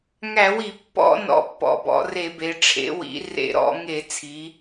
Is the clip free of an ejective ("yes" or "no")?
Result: yes